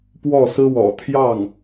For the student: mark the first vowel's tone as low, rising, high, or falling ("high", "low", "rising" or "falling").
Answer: falling